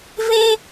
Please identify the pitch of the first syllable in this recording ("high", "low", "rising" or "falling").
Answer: high